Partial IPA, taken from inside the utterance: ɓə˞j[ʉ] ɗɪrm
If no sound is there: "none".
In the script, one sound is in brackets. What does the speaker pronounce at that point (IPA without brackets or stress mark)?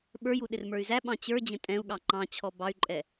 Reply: u